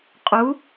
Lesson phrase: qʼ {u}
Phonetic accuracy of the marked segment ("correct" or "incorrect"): correct